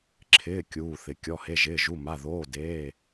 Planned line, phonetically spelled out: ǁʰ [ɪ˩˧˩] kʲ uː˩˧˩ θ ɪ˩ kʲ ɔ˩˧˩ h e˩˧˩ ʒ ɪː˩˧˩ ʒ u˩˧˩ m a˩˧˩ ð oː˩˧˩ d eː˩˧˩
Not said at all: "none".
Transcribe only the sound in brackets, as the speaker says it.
ɪː˩˧˩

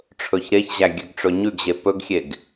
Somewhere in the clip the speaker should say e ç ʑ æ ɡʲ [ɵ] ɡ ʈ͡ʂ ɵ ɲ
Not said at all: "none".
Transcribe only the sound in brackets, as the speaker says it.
ø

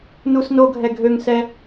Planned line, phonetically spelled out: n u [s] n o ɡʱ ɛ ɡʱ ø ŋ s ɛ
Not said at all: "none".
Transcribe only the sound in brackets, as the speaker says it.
s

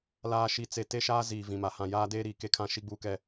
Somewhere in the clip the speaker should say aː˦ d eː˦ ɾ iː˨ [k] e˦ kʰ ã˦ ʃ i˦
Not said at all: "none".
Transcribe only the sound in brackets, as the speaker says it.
k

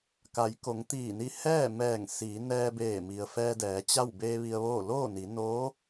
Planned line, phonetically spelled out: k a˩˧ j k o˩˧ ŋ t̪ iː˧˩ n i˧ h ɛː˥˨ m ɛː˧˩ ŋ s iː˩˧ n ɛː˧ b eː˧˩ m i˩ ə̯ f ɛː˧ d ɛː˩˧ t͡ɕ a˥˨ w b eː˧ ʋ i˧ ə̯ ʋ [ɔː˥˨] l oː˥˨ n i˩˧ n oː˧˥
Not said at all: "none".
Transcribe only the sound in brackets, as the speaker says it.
oː˥˨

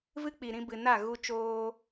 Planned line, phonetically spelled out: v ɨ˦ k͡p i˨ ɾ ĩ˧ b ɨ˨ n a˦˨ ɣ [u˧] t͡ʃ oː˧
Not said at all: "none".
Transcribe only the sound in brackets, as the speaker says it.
u˧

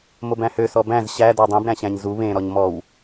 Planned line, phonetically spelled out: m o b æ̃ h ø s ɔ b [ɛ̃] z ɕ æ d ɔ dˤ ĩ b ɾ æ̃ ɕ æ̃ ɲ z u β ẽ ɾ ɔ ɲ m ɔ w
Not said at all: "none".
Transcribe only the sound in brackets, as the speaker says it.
æ̃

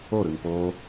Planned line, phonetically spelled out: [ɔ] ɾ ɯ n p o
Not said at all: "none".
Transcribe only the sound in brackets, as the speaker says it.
o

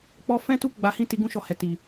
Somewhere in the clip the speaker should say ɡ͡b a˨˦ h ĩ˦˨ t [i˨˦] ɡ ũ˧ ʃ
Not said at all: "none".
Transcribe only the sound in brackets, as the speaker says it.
i˨˦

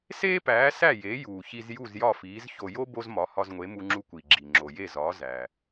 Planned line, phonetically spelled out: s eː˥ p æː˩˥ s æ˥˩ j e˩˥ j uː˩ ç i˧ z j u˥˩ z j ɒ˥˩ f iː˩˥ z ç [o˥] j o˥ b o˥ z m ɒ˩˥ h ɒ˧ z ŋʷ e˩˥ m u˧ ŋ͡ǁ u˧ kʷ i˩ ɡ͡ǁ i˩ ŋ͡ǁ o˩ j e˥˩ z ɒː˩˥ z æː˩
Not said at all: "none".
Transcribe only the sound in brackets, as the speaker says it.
o˧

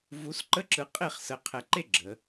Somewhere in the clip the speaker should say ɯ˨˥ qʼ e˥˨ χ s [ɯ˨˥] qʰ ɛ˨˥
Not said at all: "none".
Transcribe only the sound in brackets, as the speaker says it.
ə˨˥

